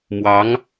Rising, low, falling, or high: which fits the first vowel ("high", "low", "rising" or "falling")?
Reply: rising